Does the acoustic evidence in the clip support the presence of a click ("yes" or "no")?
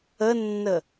no